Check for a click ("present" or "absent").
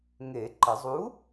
present